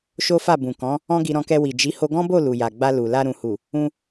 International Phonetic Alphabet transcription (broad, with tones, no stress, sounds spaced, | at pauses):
ʃ o˦ f a˦˨ b ũ˨ k ɔ̃˨˦ | ɔ̃˦ ɡ i˧ ɾ ɔ̃˧ k ɛ˧ w i˨ d͡ʒ i˨˦ h o˧ ɡ ɔ̃˦ b o˦˨ l u˨ j a˨ ɡ͡b a˧ l u˨ l a˧ ɾ ũ˨ h u˨ | ũ˧